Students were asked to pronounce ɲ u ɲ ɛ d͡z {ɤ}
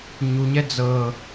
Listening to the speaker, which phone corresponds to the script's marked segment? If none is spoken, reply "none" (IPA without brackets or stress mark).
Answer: ɤ